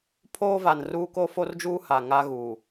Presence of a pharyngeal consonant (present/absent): absent